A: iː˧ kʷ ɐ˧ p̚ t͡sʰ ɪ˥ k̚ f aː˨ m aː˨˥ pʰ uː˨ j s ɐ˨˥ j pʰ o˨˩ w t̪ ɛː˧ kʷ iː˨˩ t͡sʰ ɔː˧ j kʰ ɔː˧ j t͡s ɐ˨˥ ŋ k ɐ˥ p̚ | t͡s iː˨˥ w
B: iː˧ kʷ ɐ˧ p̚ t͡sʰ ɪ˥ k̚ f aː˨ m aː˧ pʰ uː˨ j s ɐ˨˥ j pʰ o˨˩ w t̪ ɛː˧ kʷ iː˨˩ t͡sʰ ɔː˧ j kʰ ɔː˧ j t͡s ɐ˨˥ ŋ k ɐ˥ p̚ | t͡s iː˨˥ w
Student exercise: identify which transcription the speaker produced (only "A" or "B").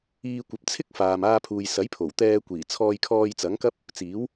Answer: B